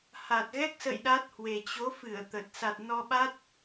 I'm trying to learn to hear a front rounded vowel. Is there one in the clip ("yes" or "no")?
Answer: no